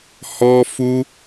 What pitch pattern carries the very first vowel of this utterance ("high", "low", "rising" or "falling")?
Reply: high